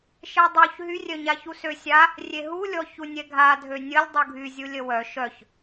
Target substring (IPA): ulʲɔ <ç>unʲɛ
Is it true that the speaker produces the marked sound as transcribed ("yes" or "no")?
yes